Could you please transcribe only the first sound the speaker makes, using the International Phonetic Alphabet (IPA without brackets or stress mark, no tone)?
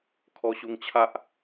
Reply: kʰ